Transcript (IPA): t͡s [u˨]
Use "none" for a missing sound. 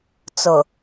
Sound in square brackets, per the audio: ʊ˨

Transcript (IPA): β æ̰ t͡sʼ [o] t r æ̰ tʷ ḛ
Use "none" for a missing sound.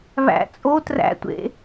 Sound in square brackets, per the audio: o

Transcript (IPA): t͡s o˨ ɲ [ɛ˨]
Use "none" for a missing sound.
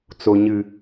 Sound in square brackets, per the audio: ɨ˨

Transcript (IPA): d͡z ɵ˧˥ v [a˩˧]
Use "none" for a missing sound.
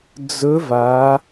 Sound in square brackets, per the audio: a˩˧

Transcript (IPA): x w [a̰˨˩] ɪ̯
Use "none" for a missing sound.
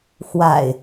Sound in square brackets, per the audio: a̰˨˩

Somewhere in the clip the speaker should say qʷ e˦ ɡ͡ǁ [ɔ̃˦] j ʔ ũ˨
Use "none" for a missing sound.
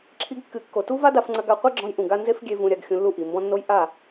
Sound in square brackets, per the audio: ɔ̃˧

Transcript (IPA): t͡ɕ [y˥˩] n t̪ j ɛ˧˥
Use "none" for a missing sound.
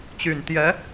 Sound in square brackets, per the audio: y˨˩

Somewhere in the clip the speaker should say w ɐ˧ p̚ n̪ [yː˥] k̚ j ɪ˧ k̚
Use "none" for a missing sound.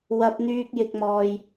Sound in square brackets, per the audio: yː˧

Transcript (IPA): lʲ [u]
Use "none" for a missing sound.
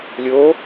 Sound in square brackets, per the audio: o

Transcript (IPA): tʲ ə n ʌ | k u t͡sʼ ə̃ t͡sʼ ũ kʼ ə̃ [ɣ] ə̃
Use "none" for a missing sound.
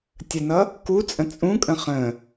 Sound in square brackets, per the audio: χ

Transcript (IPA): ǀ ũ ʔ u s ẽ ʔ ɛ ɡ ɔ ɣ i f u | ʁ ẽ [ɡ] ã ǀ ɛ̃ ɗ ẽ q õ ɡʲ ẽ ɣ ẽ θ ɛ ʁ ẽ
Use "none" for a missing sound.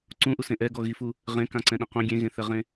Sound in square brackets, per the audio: k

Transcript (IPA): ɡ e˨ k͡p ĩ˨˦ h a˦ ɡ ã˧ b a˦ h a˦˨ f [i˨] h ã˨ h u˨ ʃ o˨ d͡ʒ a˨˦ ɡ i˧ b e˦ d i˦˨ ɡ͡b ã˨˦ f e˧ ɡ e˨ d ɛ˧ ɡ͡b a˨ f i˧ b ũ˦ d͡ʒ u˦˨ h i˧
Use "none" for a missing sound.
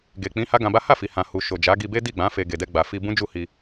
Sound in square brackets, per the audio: i˨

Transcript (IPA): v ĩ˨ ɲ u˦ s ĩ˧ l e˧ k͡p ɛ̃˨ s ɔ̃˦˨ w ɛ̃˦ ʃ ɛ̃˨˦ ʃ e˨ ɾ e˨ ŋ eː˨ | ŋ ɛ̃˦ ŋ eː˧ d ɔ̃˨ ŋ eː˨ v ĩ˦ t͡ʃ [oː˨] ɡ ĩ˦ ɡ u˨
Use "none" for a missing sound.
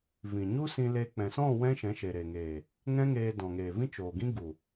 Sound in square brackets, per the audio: oː˨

